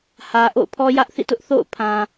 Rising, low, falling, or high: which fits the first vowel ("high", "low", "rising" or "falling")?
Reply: low